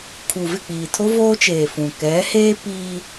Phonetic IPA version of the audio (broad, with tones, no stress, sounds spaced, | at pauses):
kʰ u˨ v ɪ˦˨ k͡p iː˨ tʰ o˦ v oː˦ t͡ʃ eː˨ f ũ˨ k ɛ˨˦ h eː˦ p iː˦